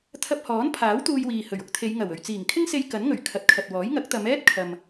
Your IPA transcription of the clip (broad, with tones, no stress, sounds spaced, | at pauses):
t̪ʰ ɐ˧ p̚ h ɔː˨˥ n pʰ aː˨˥ w t̪ uː˧ j w iː˨ h ɵ˨˩ ɥ ʊ˨˥ k̚ t̪ʰ e˨˧ j ŋ ɐ˨˩ w ɵ˨ ɥ t͡s iː˨˩ ŋ kʰ ɪ˥ ŋ s e˧ j k ɐ˨˥ n ŋ ɵ˨˩ ɥ kʰ ɐ˨˥ t̚ kʰ ɐ˨ t̚ w ɔː˨˥ j ŋ ɐ˨˥ k̚ t̪ ɐ˨˧ m ɛː˥ t̚ kʰ ɐ˨ m